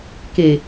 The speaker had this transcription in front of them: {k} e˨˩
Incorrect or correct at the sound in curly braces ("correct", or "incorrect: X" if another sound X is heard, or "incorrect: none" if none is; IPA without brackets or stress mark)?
correct